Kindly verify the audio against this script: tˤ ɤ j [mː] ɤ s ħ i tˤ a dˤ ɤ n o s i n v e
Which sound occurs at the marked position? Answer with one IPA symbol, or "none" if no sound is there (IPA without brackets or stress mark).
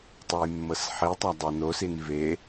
mː